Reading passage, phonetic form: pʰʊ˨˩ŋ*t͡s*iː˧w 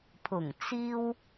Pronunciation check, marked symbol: correct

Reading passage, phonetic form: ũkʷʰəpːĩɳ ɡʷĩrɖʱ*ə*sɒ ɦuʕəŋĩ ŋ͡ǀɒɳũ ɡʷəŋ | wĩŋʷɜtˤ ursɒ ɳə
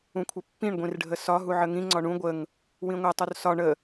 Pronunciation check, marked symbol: correct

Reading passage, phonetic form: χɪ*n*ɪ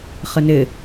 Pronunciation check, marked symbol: correct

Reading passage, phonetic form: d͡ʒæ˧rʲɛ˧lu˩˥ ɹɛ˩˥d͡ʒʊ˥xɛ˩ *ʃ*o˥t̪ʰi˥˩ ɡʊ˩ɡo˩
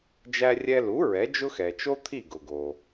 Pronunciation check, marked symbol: incorrect: t͡ʃ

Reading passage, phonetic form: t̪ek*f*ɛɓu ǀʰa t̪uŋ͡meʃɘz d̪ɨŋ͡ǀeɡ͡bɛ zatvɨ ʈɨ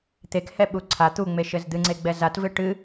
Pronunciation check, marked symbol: incorrect: h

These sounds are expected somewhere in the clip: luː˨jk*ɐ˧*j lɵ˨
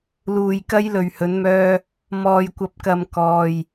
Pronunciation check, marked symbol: correct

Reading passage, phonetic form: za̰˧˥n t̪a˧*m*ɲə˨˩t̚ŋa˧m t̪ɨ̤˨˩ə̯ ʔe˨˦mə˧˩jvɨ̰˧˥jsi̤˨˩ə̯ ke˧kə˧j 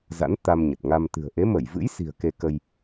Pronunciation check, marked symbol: correct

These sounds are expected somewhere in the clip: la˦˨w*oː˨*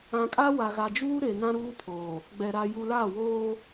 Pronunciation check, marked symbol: incorrect: oː˦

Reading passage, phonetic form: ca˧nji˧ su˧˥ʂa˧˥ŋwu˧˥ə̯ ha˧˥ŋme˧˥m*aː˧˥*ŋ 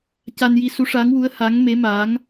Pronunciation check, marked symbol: correct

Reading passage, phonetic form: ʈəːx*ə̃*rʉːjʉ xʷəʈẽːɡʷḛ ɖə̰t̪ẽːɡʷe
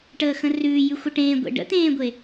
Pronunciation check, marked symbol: correct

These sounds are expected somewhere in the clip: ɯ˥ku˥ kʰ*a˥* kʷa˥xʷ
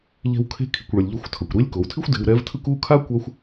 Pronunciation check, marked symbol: correct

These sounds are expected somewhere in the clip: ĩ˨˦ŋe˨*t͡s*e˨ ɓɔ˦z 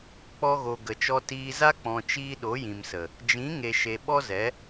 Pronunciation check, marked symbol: incorrect: ʃ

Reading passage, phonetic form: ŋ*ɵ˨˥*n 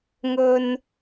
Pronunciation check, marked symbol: incorrect: ɵ˨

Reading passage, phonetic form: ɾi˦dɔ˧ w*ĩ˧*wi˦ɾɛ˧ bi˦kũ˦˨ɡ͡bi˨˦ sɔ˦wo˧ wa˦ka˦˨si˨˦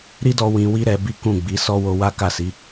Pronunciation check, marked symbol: correct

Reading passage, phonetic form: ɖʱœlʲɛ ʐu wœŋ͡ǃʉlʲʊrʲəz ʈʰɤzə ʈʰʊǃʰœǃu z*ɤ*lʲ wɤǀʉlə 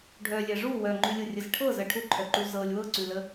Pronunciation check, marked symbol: correct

